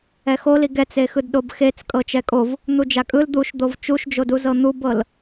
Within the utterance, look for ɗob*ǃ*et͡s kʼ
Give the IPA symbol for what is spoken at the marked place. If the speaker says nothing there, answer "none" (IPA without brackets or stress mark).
x